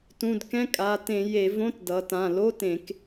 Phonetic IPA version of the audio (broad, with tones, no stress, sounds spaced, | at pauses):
t ũ˩˧˩ d k ɛ̃˧˥˧ kʼ a˩˧˩ t ẽ˧˩˧ j e˧˩˧ v õ˧˥˧ t d ʌ˩˧ t ã˩˧˩ l o˧˥˧ t ẽ˧˩˧ k